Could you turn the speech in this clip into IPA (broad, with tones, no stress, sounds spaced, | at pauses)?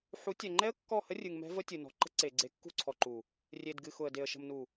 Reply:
ħ u˨˦ tʲ ɛ˨ ŋ͡ǃ ɛ˦ ə̯ kː ɔ˦˨ h ə˦ rʲ ɨ˨ ŋ m ɛ̤˦ v ə˦ tʲ ɨ˨ n ɔ̤˨ ǃ ə̤˦ ǀ e˨ ɡ͡ǀ e˨˦ kː ṳ˦˨ ǀʰ ɔ˨ ǃ u˨ | rʲ e˨ d ɡ ɨ˨ x ʊ˨ ə̯ d e˨ ə̯ ʃ ə̤˨ m n u˨